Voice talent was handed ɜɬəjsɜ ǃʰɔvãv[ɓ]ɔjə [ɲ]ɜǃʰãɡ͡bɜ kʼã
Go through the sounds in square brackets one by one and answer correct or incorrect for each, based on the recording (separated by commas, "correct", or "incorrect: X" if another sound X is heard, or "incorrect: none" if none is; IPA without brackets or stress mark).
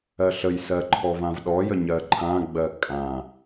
incorrect: ɗ, correct